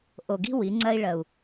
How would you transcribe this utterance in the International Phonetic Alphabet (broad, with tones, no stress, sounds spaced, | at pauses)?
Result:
ʔ o˨ ɡ i̤˧ w i˨˦ ŋ͡ǀ ɜ˦ i̯ ɭ ɜ˨ u̯